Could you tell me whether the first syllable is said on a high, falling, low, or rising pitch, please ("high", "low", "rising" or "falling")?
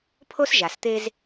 high